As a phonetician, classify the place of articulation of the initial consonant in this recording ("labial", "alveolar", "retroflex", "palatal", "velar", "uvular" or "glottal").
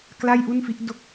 velar